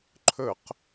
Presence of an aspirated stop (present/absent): present